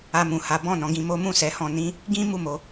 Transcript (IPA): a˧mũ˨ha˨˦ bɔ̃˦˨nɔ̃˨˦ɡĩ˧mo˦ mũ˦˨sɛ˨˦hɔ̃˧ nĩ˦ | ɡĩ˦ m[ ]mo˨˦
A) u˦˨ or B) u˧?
A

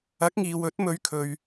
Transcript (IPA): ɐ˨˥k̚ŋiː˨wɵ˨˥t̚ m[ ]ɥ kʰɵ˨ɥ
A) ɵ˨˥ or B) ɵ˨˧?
B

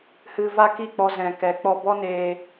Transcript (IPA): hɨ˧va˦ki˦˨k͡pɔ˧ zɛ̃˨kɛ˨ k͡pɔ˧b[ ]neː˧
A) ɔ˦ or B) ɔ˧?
A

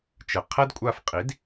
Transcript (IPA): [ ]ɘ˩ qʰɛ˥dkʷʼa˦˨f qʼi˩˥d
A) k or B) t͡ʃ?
B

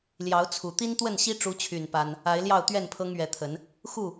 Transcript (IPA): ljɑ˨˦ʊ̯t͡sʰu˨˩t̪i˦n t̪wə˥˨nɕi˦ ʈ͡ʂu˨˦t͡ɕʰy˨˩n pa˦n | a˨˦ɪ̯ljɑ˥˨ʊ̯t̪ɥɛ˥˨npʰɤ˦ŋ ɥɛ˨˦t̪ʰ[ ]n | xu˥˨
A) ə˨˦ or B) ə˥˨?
A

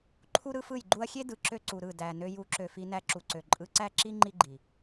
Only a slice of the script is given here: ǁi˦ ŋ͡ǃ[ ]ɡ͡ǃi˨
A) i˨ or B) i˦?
B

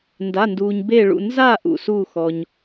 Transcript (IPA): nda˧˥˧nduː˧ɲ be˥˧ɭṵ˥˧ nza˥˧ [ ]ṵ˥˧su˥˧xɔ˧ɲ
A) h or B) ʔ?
B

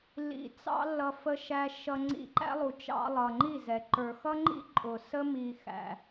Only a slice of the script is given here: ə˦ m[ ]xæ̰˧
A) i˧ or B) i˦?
A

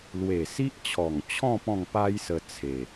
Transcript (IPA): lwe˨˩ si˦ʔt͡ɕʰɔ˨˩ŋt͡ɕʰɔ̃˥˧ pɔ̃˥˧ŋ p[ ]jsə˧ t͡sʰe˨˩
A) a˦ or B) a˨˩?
A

